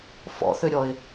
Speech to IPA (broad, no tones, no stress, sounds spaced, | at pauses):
f ɔ̰ θ ʏ ɾʲ ɔ ɪ̯